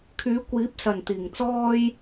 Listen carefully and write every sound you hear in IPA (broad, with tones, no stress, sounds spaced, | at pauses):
kʰ yː˨˥ kʷ iː˨˥ p̚ s ɐ˨˩ n t̪ iː˨˩ ŋ t͡s ɔː˥ j